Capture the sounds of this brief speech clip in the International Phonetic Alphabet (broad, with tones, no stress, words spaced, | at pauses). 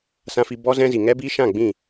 sã˧fi˧ bɔ˦zɛ̃˦ zi˨ŋɛ˦biː˦ ʃã˦˨ ɡ͡bĩ˦˨